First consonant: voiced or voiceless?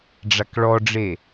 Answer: voiced